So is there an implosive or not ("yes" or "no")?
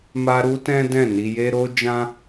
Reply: no